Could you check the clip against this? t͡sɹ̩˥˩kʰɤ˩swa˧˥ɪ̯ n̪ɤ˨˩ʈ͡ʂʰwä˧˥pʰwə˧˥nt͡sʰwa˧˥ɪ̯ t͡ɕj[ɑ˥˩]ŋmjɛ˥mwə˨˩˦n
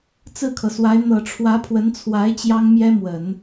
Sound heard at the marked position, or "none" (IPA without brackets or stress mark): ɑ˥